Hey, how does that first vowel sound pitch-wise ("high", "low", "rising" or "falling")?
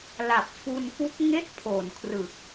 low